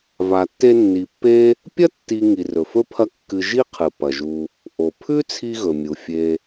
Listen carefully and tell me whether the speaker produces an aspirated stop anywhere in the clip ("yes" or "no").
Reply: yes